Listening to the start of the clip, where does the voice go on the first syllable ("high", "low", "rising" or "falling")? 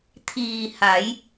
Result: low